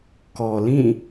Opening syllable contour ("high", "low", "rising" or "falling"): low